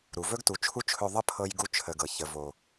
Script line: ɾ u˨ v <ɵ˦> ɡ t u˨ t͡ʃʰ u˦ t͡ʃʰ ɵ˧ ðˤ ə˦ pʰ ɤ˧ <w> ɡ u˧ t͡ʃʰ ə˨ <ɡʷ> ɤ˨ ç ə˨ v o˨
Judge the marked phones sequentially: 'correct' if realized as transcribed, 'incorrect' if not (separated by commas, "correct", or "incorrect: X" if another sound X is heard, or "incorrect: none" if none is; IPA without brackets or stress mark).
correct, incorrect: j, incorrect: ɡ